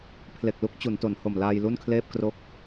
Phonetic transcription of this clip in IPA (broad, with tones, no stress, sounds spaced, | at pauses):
pʰ l e˨˩ k̚ l u˦˥ k̚ t͡ɕ u˩˦ n t o˩˦ n h o˨˩ m l aː˧ j l u˥˩ n kʰ l eː˥˩ p̚ k r o˦˥ k̚